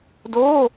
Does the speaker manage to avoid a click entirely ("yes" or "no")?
yes